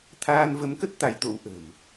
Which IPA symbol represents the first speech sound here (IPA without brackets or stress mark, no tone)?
t̪ʰ